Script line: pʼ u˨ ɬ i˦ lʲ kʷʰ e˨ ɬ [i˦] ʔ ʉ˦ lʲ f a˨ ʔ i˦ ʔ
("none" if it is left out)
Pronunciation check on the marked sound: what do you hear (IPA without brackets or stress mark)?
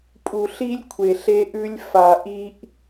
e˦